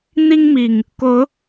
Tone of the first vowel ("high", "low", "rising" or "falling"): high